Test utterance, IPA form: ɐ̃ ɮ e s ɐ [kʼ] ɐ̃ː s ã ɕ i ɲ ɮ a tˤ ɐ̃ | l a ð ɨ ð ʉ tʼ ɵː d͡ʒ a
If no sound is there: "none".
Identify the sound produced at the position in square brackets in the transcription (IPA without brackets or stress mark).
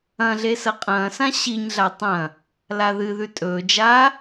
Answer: qʼ